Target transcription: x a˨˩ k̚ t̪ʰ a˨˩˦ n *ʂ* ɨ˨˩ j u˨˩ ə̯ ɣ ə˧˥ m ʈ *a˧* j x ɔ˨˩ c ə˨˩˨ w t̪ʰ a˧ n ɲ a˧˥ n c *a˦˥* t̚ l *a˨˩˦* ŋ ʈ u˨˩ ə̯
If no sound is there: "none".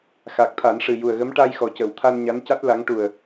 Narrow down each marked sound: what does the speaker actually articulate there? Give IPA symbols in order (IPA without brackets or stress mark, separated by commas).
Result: ʂ, a˧, a˦˥, a˧˥